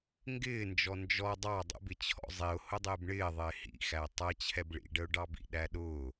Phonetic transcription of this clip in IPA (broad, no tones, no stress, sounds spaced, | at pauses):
ŋ ɡ ɪː n d͡ʒ ɔ n d͡ʒ ɔ dˤ ɑ dˤ ə̰ b ɪ t͡ɕʰ ɔ̰ zˤ i ʊ̯ h ʊ dˤ ɪː b ɳ ɪː ðˤ ɪː h ḭ x æ tˤ ʌ t͡ɕʰ ɛ b ɭ ḭ ɖ ə ʊ̯ ɖ ɑ b ḭ ɗ æ ɗ ʊː